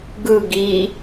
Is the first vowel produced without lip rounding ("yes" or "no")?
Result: yes